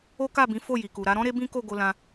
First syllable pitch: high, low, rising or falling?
high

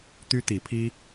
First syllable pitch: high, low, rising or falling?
high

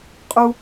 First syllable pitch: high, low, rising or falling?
high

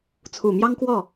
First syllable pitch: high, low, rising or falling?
low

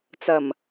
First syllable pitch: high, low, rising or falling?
low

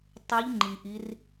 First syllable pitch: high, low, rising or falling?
rising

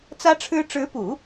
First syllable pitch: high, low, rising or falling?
high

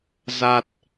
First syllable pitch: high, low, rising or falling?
low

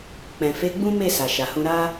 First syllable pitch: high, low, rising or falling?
low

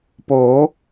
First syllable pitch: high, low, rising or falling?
rising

